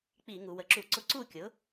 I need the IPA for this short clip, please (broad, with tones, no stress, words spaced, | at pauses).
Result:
k͡pi˧˩˧ŋu˩˧ wə˩˧ǁu˧˩˧ǀʊ˧˥ ǀu˥˩kʲʊ˩˥